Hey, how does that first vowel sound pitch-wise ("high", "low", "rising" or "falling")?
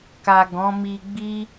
low